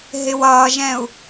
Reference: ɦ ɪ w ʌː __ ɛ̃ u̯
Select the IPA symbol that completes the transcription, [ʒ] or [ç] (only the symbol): ʒ